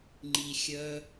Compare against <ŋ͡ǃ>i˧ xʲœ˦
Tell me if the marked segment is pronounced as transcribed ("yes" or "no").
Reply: yes